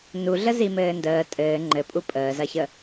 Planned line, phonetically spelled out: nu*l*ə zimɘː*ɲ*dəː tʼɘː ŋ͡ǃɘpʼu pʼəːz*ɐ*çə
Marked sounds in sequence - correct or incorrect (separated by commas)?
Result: incorrect, incorrect, correct